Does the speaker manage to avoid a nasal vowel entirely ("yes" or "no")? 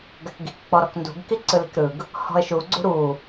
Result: yes